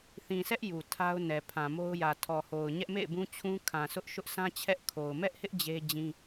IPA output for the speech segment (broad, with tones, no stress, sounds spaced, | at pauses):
θ ĩ˨ sʰ ɛ˦ ʔ j u˨ tʰ a˦ ʊ̯ n ɛ˨ pʰ ã˨ m o˦ ʊ̯ j ä˨ tʰ ɔ˨ h o˨ ʊ̯ ɲ ɛ˦ ʔ m ḛ˦˨ ɪ̯ b ũ˦ t͡ɕʰ ũ˦ kʰ ã˨ sʰ ʊ˦ ʔ ʃ ʊ˦ ʔ sʰ ã˦ t͡ɕʰ ɛ˦ ʔ kʰ o˨ ʊ̯ m ɛ˦ ʔ h ɪ˦ ʔ d͡ʑ e˦ d͡ʑ ĩ˦